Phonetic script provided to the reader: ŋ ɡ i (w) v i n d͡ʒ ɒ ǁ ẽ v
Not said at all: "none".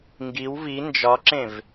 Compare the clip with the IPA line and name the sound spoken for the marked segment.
w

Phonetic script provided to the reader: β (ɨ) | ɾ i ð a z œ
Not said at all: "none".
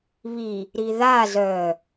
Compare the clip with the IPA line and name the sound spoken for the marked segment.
i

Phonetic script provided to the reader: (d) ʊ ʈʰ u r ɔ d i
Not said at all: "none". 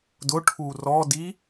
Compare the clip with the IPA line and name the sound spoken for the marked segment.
d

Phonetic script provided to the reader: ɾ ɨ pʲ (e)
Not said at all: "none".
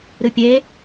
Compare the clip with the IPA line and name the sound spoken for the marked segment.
e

